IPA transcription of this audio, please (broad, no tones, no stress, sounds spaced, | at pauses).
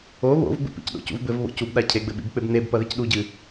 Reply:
o β o̰ v ɡ͡b ṵ p ḭ c ɗ o̰ c ṵ v b ɘ v β o̰ c u b ɗ a cʰ e ɡ͡b ɘ ɓ ḭ b k͡p e b n e b p ɐ ð e c ɗ u ɟ ɨ